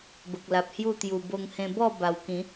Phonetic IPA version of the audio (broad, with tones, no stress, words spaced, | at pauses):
bə˨k̚la˨p̚hju˥˧t̪ju˨˩ bo˧ŋhẽ˧ bɔ˥˧ ba˨˩wkĩ˨˦